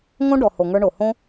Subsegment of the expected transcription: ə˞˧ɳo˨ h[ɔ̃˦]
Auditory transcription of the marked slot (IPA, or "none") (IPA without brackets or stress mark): õ˦